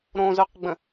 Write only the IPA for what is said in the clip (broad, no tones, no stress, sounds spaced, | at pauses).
ɾ õ z œ q ɡ͡b ə̃